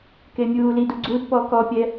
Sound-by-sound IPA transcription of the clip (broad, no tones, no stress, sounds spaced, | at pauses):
k e mʲ uː l i d u ɡ͡ǀ u d p ɔː k ɔ pʲ ɛ